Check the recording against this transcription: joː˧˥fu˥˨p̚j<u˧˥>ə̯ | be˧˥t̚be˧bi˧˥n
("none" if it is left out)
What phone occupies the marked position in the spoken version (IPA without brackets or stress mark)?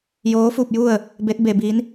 u˥˨